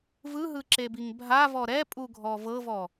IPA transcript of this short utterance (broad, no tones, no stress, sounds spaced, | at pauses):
v ɯ ɦ ɯ ǁ e b i ŋ bʱ a v ɔ ɾ ɛ pʼ u ɡʱ ɔ v ɤ v ɔ